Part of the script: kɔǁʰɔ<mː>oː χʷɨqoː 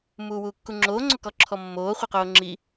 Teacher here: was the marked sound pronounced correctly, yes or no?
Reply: yes